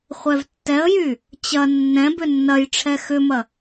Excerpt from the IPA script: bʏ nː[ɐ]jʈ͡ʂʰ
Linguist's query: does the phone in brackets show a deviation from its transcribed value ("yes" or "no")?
no